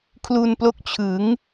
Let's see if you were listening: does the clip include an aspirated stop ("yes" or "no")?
yes